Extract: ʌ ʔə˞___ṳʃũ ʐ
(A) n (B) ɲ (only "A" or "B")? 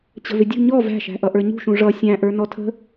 B